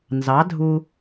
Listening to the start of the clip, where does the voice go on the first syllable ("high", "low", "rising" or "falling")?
rising